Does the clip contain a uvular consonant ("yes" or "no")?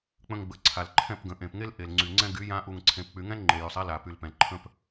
no